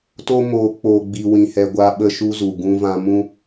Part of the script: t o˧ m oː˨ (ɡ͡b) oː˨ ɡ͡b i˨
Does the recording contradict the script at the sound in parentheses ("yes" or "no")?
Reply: yes